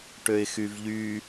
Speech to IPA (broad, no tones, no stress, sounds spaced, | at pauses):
ʈ ø ɪ̯ x y v ʎ y